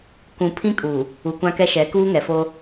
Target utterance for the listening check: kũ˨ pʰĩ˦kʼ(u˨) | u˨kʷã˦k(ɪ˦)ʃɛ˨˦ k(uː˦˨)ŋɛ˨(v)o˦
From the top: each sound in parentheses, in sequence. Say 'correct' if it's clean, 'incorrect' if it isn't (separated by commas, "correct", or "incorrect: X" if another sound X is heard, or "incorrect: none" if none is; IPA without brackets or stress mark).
incorrect: uː˨, incorrect: ɛ˦, incorrect: uː˦, incorrect: f